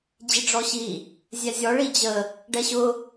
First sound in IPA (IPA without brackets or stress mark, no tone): d͡ʑ